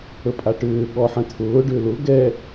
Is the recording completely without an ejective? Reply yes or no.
no